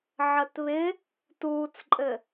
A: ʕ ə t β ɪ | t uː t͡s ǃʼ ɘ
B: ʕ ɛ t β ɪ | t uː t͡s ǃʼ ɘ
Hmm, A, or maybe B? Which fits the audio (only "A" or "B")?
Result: A